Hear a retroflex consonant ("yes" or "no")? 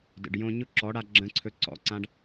yes